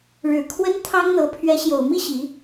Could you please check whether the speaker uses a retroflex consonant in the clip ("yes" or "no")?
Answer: yes